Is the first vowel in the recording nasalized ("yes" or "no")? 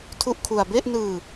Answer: no